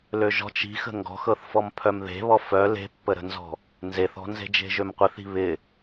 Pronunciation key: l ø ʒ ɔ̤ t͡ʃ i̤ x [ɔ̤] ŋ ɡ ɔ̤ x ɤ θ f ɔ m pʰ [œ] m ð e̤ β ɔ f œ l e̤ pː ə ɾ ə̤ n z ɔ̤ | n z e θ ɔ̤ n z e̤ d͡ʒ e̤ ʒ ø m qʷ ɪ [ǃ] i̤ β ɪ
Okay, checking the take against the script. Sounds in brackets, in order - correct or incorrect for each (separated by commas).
incorrect, correct, incorrect